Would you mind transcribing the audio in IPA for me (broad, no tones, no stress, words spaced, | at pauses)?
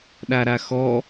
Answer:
ɗaɾaxɔ